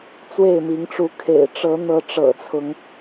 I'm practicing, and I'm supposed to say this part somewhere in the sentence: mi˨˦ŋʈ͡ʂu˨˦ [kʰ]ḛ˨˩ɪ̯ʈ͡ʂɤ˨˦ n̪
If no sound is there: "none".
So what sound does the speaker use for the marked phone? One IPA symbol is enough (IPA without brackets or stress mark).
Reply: kʰ